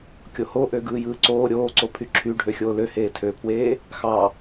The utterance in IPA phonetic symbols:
kʲ o h o ʔ ø ɡ ɯː j ɯː ǀ oː ɾʲ oː ǀ o pʰ y ǁʰ y ɖʱ ø xʲ oː l ø h eː tʰ ø pʰ w eː | x ɑ

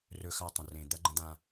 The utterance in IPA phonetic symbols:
r ɵ˦ x a˦ tˤ ə̃˨ r ẽ˨ d̪ ɐ˦ ɡ͡ǃ ə̃˦ d̪ ã˦

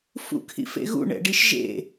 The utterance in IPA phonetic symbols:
f ṵ kʰ ḭ f ḛ ɣ ṵ ɳ ɛ̰ ɖ i ʃ ʒ ḛ

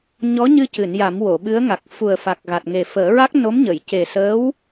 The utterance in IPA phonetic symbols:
ɲ ɔ˧˥ ɲ ɨ˧ c ɨ˨˩˨ n j a˨˩˦ m w o˨˩˨ ɓ ɨ˧˥ ə̯ ŋ a˨˩ k̚ f u˨˩ ə̯ f a˨˩ k̚ ɣ a˨˩ t̚ ŋ e˨˩ f əː˨˩˦ ɹ a˦˥ k̚ n o˧˥ m ɲ ə˨˩˨ j c e˨˩ s əː˧˥ w

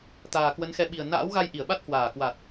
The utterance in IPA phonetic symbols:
t̪ aː˨˩ k w ə˨˦ n x ɛ˨˦ ɓ i˨˩ ə̯ n a̰ː˧˥ w ɣ a˧ j ʔ i˧˩ ə̯ ɓ a˦˥ t̚ h w aː˧˩ k w a˨˩ t̚

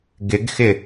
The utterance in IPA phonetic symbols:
ɡ ɪ ɡ x ɪ

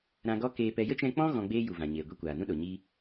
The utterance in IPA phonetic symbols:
ɾ ã˧ ɡ ɔ˦ k eː˧ p ɛ˧ j ə˦ t͡ʃ ɛ̃˧ k͡p ɔ̃˦ ɣ ɔ̃˧ ɡ͡b eː˦ j u˨ v ã˨ ɲ eː˨ ɡʷ i˧ kʷ aː˨ n ũ˦ ɗ o˨ ɲ i˧

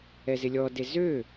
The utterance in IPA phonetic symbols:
ɛ z ɪ lʲ ɔ d e z ø

